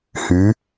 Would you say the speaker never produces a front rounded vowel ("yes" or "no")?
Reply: no